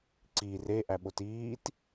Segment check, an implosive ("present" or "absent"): present